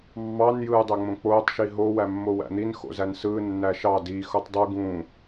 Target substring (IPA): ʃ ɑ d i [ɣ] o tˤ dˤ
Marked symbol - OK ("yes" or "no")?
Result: no